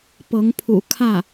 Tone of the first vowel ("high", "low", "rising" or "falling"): rising